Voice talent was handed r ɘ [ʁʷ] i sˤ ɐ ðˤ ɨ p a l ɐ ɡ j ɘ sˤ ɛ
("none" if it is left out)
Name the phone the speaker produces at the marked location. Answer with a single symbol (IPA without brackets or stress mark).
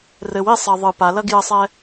w